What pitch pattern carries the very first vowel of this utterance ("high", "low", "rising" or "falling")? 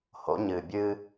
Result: rising